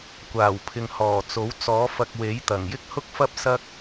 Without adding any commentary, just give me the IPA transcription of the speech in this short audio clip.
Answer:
kʷ aː˨˩ w pʰ ɪ˨ ŋ h ɔː˨˩ t͡s o˨˥ w t͡s ɔː˨˥ f ɐ˧ k̚ w e˨˥ j t̪ ɐ˨˩ ŋ j ɪ˥ k̚ h ʊ˥ k̚ f ɐ˥ p̚ s ɐ˥ k̚

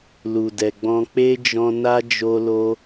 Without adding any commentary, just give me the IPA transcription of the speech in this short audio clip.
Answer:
l u˨ d ɛ˨ ɡ͡b ɔ̃˧ k͡p e˦ d͡ʒ ɔ̃˧ n a˦ d͡ʒ o˧ l o˧

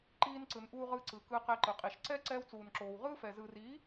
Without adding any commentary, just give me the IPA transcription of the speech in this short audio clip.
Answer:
ǃ iː˧ n ǀ ɯ˨ n ʔ uː˧ ʁ ɯ˧ ǀ ɯ˨ k ɯ˧ q ɛ˧ ǃ ɯ˨ qʼ i˨ ʃ ǀ ɛ˦ ǀ ɛː˧ w t͡s uː˨ n ǁ oː˨ w ʁ ɯː˦ f ɛ˨ z ɯ˨ r i˨˦

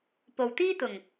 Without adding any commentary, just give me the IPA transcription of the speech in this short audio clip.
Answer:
p o˨ w t̪ iː˥ t̪ ʊ˨˩ ŋ

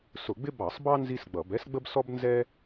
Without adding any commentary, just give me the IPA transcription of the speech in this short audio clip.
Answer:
s ʊ˧˩˧ ɡ͡b ɪ˥ b ɑ˧˩˧ sˤ b ɑ˥ n z i˥ s ɡ͡b ʌ˧˩˧ b ɛ˥ s ɡ͡b ə˥ b s ɔ˥ b n z ɛ˥

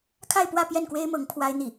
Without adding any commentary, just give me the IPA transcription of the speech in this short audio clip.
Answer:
kʰ a˥˧ ɪ̯ p w ä˥˧ p j ɛ˥˩ n k w e˥ ɪ̯ m ɤ˧˥ ŋ pʰ w a˥ ɪ̯ n̪ i˥˩

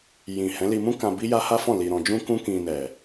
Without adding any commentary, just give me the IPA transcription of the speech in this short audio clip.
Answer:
j ĩ˨ h ɛ̃˨˦ l i˧ m ũ˦ k ã˧ b i˦ j a˦ h a˦ f ɔ̃˦˨ l i˧ ɾ ɔ̃˧ d͡ʒ ũ˦ k ũ˦ k ĩ˧ n ɛ˨

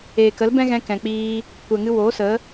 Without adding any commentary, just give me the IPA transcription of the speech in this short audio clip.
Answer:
eː˨ k ə˨˦ l b ɛ̃˦ ɣ ɛ̃˧ k ɛ̃˨ k͡p iː˧ | kʷ ɛ˨ ŋ ɨ˧ w oː˨˦ s ə˨˦

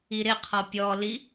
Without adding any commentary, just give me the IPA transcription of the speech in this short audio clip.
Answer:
i ɾ ɪ qʰ ɔ pʲ ɔ l i

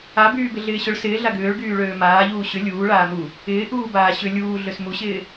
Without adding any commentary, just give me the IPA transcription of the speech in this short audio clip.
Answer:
a b yː b ɪ ɮ ɪː ɕ ʊ ɭ s ɪː ɮ a ɡ ʏː ɭ ɡ yː ɭ øː m aː ʎ uː ɕ ʏ lʲ uː ɭ aː m u | ɪː ʔ uː b aː ɕ ʏ lʲ uː ɮ ø s m u ɕ ɪː

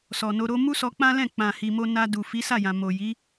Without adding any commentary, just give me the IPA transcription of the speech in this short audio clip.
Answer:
s ɔ˨ n o˧ ɾ o˦ m u˦ s ɔ˧ k͡p ã˦ l ɛ̃˦˨ k͡p ã˨ h i˧ m o˦ n a˧ d u˨ f i˨˦ s a˦˨ j ã˨ m o˨ j i˨˦

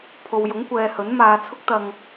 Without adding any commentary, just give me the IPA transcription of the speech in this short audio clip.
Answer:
pʰ o˨ w j ʊ˨˥ ŋ kʷ ɛː˨ h ɵ˨˥ n m aː˨˧ t͡sʰ ʊ˥ k̚ t̪ ɐ˧ ŋ

